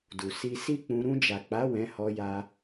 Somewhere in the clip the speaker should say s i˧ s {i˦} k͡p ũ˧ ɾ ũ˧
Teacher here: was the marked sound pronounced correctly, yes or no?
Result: yes